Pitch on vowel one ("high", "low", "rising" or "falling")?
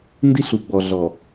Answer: high